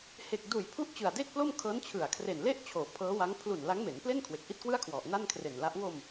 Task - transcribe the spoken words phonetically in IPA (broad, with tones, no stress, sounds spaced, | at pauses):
h e˨˩ k̚ d uː˨˩ j pʰ u˦˥ ʔ t͡ɕ ɯ˨˩ a̯ d e˥˩ k̚ p l o˥˩ m kʰ ɤː˦˥ n t͡ɕʰ ɯ˨˩ a̯ kʰ r e˨˩ n l e˥˩ ʔ t͡ɕʰ oː˩˦ pʰ ɤː˦˥ w a˦˥ ŋ pʰ l u˨˩ n l a˦˥ ŋ m e˩˦ n p l e˥˩ n kʰ w e˨˩ k̚ ʔ i˥˩ t̚ k w ɯ˥˩ a̯ kʰ w ɔ˨˩ ʔ n a˥˩ n kʰ r e˨˩ n l a˦˥ ʔ w o˧ m